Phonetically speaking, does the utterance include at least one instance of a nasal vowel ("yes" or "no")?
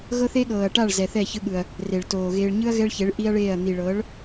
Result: no